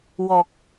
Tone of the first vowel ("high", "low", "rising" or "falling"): low